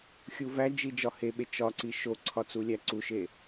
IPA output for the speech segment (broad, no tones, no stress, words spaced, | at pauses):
xʲuvæd͡ʒi d͡ʒɒheɓe t͡ʃɒǀi ʃoǀʰɒ t͡sulʲæǀuʃe